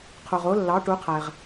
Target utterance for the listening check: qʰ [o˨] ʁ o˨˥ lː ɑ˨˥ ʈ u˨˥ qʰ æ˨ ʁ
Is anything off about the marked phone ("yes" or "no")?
no